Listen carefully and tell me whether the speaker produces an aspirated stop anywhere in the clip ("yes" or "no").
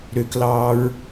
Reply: no